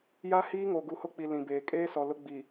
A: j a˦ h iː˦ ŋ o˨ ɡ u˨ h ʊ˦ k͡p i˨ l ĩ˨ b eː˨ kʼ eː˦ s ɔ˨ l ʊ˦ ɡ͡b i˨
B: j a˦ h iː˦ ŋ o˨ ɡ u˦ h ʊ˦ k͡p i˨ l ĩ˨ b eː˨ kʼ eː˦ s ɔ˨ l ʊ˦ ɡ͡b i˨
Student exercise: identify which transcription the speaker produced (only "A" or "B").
A